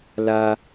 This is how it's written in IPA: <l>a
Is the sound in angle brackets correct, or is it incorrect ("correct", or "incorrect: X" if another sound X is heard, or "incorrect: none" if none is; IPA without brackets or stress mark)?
correct